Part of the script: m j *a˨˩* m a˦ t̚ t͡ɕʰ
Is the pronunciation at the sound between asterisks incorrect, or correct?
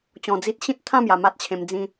correct